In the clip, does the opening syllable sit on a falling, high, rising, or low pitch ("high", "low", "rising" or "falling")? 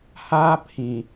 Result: high